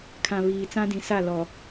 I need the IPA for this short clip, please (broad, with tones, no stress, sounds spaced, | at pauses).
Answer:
kʰ ã˨ β iː˨ t͡s ã˦ d ĩ˨˦ s a˦˨ l ɔ˨